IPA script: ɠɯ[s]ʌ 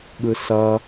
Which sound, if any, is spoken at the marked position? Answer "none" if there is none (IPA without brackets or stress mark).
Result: s